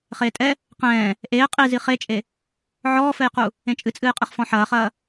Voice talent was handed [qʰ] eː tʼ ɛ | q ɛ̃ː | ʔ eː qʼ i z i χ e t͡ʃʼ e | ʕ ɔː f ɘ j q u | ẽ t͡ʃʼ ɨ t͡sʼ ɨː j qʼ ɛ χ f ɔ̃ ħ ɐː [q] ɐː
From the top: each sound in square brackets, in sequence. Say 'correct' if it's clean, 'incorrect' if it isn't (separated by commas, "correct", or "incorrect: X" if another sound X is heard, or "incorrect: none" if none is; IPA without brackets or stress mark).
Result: incorrect: χ, incorrect: χ